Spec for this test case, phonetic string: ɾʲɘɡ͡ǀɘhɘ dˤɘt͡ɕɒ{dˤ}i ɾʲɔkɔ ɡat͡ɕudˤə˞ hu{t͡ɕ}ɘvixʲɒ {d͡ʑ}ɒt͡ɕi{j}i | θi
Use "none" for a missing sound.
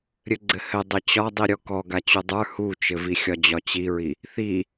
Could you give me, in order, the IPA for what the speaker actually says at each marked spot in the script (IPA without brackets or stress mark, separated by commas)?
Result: dˤ, t͡ʃ, d͡ʑ, ɹ